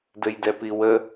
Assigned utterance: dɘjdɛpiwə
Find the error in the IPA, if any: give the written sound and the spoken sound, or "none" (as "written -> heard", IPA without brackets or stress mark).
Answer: none